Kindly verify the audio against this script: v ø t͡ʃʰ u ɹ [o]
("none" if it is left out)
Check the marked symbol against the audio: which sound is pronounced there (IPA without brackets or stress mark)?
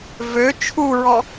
ɔ